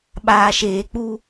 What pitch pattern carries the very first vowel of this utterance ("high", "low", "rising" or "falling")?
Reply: low